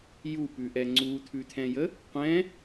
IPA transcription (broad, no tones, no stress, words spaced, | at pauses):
jupʉʔɛ ŋ͡ǀut̪ʰʉt̪ʰɛ̃jə | qʷɛ̃